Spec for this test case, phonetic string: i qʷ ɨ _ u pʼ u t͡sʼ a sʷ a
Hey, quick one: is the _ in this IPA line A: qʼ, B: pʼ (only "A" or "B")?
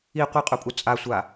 A